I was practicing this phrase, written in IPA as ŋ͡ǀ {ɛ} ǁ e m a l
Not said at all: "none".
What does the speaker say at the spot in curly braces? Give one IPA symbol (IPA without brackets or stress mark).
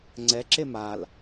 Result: ɛ